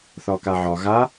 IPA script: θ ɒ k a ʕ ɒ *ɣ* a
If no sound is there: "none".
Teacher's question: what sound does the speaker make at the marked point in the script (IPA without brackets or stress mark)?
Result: ɣ